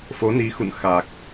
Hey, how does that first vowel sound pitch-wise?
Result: rising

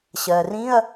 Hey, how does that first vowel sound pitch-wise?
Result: low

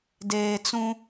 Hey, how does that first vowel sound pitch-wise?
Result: low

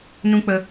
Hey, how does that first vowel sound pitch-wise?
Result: high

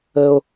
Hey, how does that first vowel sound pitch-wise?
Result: low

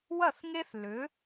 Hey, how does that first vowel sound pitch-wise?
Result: falling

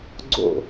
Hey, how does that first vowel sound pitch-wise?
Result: falling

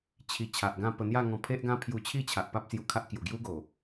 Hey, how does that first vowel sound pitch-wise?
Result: low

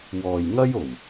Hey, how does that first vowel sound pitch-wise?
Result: low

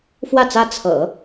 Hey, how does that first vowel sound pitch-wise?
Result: falling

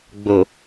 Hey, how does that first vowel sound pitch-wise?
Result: low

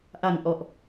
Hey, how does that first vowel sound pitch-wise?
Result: low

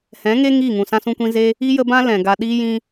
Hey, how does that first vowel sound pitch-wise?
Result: rising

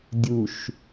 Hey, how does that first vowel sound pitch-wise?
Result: low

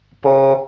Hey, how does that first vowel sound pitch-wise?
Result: low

